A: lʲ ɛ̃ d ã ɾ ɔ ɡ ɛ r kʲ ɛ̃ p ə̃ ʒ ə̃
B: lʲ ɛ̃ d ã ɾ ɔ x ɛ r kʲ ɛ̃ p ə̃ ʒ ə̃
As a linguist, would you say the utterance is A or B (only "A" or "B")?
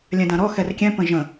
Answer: B